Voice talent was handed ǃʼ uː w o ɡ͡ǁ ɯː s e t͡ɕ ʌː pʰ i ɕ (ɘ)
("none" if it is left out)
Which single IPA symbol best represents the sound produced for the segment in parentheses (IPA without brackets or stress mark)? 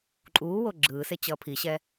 ɛ